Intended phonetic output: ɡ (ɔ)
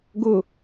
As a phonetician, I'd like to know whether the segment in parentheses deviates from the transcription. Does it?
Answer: yes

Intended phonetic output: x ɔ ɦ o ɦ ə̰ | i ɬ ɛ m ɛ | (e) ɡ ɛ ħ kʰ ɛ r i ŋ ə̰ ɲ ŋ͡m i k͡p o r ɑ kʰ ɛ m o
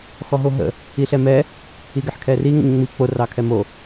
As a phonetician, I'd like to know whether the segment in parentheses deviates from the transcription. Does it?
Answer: yes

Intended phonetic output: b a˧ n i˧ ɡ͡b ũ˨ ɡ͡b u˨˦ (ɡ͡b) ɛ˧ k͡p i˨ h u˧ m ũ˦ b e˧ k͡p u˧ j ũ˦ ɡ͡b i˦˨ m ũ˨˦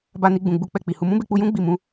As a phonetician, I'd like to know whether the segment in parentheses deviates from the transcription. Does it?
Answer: yes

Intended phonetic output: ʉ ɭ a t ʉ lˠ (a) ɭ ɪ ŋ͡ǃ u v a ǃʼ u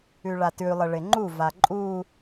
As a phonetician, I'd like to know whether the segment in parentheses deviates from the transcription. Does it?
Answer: yes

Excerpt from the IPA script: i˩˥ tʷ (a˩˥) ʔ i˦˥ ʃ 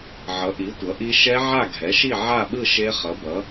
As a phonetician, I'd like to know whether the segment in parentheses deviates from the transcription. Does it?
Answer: yes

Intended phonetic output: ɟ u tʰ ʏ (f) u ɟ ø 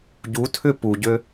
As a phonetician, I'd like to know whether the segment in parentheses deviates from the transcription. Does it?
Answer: yes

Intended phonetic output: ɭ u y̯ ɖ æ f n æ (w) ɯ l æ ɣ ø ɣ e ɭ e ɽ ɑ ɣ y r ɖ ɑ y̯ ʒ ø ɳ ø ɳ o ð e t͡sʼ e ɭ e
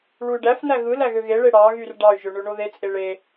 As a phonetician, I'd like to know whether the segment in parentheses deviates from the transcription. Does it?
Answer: yes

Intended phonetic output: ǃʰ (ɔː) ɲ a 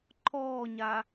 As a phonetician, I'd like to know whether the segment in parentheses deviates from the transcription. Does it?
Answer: no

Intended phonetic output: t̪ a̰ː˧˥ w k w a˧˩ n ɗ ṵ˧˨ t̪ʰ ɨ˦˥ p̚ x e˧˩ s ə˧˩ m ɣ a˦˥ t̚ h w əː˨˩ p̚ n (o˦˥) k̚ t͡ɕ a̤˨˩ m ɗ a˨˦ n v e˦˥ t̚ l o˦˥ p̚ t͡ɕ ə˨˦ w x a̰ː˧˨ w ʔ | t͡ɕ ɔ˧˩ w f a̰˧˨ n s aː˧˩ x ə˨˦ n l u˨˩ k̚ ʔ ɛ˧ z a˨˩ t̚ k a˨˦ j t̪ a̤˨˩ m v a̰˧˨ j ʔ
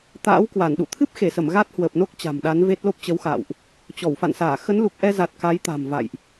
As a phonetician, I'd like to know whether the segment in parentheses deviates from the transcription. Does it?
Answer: no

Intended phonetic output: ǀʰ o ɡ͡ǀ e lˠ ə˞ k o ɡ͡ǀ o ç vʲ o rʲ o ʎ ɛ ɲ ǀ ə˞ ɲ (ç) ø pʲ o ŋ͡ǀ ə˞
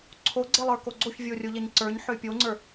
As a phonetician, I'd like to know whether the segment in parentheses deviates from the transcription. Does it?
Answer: yes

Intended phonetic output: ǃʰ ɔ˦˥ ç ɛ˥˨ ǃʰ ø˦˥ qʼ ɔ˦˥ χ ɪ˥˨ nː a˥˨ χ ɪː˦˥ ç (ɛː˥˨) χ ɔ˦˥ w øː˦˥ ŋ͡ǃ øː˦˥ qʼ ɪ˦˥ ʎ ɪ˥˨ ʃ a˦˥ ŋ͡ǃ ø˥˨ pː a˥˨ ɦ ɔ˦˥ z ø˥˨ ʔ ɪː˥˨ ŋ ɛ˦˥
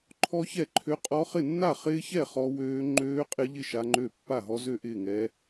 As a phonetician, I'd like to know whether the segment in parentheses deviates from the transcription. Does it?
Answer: yes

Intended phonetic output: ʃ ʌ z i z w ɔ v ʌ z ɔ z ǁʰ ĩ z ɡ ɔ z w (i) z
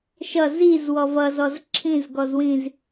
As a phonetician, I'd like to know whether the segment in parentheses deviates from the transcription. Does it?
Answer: yes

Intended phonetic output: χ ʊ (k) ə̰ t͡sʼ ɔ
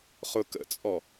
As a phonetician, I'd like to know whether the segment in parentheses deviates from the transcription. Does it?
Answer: no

